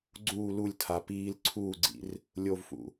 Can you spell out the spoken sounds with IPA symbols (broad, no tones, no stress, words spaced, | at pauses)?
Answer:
ɡ͡ǀuː lulʲ tʰa piːl ǀʰuːɡ͡ǀḭr | lʲovfṵ